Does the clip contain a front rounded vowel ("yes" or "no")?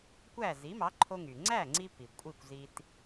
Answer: yes